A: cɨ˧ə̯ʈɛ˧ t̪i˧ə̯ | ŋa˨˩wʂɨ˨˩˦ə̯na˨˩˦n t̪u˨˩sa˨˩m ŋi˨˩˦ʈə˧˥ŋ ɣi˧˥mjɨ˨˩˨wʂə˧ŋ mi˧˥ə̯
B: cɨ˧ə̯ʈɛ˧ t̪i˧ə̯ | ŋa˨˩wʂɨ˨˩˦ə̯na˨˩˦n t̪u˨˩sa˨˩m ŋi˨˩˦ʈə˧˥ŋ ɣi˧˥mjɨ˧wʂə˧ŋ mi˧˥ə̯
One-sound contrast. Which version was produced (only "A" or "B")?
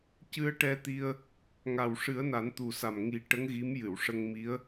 A